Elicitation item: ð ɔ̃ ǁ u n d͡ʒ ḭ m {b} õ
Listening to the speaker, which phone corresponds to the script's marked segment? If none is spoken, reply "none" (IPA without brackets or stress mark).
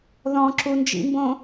b